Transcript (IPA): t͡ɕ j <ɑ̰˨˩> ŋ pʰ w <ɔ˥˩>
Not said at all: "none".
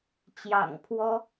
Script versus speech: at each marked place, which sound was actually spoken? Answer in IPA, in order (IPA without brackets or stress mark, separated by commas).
ɑ̰˨˩, ɔ˥